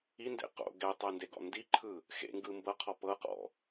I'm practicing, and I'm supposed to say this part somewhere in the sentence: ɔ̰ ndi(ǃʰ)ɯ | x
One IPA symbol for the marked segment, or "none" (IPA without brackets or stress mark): ǃʰ